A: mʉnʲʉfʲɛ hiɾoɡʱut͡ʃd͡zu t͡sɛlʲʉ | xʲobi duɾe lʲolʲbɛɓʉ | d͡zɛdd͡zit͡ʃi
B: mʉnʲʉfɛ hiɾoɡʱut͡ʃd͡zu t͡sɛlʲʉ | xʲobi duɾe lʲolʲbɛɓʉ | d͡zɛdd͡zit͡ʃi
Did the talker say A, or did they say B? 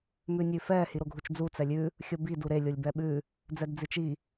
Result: B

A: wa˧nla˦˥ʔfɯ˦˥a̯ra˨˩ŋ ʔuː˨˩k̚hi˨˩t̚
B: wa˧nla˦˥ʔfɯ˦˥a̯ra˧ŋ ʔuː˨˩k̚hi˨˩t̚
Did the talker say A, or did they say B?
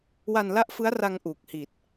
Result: B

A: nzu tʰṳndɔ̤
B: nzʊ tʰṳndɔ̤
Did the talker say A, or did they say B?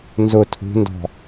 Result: B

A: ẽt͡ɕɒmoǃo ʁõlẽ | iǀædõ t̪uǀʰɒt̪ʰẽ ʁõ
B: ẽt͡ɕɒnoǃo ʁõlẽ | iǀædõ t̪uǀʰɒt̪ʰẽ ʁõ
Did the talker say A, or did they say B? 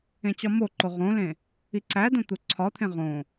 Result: A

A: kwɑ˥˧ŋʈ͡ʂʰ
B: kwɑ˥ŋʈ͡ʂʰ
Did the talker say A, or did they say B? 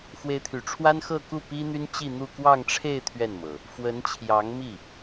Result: A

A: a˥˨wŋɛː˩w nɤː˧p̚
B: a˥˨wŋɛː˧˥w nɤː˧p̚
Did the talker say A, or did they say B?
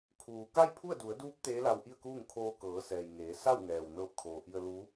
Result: A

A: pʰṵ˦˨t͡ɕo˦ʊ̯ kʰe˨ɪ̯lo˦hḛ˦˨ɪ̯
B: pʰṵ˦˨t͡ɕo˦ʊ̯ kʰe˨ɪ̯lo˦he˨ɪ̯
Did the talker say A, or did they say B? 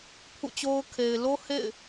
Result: A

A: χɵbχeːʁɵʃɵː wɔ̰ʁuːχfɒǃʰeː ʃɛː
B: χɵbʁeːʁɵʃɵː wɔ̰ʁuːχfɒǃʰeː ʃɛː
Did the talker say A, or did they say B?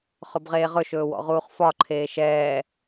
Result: B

